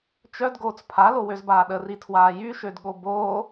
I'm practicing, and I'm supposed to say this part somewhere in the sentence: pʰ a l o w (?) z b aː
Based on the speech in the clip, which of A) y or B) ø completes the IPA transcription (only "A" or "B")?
B